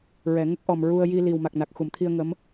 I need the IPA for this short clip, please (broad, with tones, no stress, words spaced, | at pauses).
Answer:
ɹɛ˨˩˨ŋə˦˥k̚ʔɔ˨˩m ɹu˧ə̯ ji˧ li˨˩wma˨˩k̚na˨˩k̚ xu˨˩˨mt̪ʰi˧ə̯ ŋə˧˥m